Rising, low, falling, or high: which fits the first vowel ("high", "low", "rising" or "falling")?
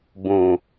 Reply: low